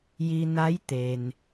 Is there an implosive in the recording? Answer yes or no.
no